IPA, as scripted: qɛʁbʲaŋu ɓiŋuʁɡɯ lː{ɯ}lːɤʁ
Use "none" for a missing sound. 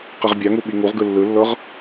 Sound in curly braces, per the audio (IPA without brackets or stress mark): ɯ